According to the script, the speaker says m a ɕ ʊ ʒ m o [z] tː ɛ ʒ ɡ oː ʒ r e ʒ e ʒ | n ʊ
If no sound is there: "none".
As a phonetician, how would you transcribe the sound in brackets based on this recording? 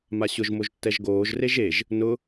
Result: ʒ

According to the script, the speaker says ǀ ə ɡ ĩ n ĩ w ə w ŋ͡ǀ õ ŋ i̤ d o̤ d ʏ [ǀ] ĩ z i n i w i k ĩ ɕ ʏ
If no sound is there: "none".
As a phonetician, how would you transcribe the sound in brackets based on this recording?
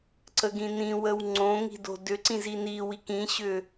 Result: ǀ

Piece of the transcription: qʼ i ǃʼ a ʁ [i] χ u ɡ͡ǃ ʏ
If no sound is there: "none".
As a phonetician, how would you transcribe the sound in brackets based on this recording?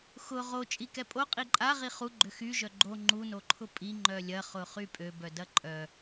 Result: i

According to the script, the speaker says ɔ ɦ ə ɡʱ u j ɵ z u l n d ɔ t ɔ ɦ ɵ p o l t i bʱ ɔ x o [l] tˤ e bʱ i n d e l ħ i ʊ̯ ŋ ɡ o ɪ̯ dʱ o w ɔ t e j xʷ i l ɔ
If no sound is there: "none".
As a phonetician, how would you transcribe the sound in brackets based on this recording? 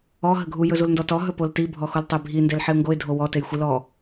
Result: l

